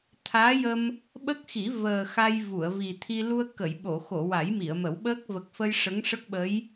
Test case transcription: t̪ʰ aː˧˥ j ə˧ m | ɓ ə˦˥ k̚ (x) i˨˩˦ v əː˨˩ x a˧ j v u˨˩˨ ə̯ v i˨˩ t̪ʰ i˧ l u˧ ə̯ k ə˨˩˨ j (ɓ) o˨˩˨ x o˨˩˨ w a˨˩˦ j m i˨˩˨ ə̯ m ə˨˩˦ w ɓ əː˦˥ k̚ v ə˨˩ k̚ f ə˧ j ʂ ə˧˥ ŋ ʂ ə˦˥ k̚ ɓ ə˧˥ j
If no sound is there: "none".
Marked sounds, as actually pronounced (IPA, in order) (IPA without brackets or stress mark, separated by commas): x, ɓ